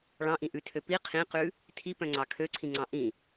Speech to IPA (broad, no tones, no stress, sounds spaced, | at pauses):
ɭ ɑ̃ ʔ ĩ ʔ ʉ tʰ ø p i qʰ ĩ q ʉ | tʰ i p œ̃ ŋ͡ǀ ɑ kʰ ø ǀʰ ĩ ŋ͡ǀ ɑ̃ ʔ ĩ